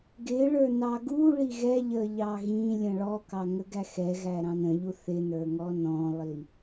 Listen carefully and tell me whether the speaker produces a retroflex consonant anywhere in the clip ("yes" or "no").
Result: yes